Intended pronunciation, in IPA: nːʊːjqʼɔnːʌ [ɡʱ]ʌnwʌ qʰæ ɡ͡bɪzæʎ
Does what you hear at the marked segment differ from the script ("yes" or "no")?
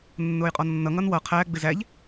yes